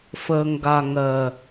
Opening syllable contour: low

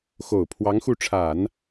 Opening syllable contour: low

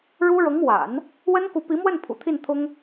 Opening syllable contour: high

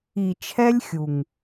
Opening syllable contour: low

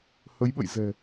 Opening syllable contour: rising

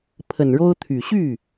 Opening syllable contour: low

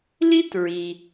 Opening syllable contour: high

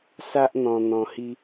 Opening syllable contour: high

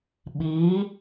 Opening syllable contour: rising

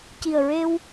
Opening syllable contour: low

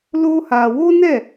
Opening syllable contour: high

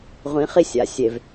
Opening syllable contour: rising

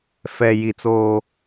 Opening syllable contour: low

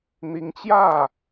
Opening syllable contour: rising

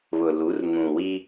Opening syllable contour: low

